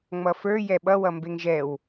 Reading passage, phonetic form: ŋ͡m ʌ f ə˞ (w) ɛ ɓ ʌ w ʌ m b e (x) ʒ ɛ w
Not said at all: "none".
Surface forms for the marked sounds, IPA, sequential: j, ŋ

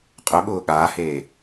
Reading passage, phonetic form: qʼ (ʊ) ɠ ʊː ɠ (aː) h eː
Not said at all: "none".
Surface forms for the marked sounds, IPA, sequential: ʊ, aː

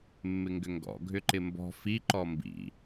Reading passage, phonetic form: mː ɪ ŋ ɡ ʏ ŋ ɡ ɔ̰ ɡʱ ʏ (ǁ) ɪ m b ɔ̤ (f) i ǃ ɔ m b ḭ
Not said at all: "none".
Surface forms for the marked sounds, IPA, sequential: ǃ, f

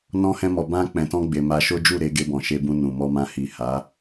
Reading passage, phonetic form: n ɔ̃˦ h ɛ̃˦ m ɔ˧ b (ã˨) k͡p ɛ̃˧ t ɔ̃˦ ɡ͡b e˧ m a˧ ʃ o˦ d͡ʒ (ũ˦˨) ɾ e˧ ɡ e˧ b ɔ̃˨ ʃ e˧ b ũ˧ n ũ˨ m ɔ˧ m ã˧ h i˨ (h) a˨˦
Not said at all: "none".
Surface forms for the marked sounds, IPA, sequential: ã˦, u˦˨, h

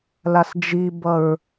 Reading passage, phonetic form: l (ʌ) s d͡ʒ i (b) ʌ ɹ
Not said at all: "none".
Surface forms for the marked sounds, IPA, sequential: a, b

